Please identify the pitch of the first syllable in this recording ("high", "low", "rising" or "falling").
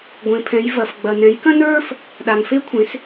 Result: low